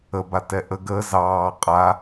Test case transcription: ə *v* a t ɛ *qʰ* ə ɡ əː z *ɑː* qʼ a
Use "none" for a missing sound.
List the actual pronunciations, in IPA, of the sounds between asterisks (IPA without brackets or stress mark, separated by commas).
b, ʔ, ɑː